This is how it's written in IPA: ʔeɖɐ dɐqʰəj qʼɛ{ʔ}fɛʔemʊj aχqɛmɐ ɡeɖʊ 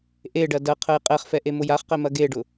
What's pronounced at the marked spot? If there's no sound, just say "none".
χ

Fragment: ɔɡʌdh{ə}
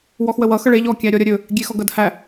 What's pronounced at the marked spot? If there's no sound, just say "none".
æ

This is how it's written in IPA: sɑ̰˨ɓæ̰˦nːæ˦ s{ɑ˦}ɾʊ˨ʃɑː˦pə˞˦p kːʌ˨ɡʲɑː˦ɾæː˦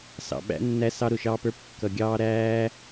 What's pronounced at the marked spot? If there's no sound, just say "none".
ɑ˦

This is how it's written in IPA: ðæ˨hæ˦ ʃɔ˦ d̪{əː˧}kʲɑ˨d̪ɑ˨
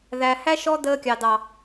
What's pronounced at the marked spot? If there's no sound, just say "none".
əː˧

